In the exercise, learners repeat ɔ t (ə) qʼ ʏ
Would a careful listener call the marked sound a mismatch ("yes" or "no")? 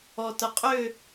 no